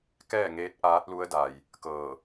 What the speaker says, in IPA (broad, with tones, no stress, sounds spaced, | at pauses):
k ɛː˥˨ ŋ eː˧˥ t̚ ʔ aː˧˥ t̚ l u˧˥ ə̯ d a˩ j | k ɤː˧˩